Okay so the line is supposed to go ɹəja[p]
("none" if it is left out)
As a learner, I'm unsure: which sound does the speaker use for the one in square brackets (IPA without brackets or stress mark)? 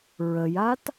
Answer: t